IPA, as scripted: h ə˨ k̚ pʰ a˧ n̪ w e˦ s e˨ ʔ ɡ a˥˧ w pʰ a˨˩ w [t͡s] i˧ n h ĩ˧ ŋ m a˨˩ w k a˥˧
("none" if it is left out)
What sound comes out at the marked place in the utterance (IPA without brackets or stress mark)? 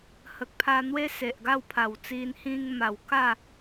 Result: t͡s